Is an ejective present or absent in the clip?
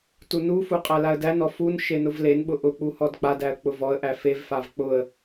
present